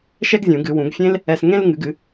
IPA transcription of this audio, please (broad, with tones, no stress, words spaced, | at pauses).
ʃɛ˥ɡzʲũ˨˩˦ɡɨ˨˩˦wũ˨˩˦ɡ fʲẽ˥l | ɛ˧sŋẽ˥lŋɨ˨˩˦ɡɨ˨˩˦